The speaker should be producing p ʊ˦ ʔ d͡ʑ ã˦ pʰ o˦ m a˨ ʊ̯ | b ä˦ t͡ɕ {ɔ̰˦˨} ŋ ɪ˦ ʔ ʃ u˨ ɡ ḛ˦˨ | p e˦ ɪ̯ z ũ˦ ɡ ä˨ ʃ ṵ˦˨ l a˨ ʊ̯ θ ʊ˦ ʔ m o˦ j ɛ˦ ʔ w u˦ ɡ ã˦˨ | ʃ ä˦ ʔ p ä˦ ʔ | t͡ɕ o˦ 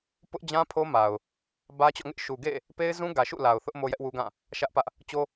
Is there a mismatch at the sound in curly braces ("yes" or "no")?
no